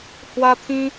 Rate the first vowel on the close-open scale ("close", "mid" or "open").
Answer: open